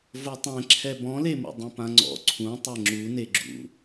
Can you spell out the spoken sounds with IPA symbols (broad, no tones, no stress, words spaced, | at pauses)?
votˤɛ̃ ǁʰɛbɔ̃lemṵ dˤũpãŋ͡ǀɔ̰ ǀʰũ tˤɛŋ͡ǁu neɡ͡ǁṵ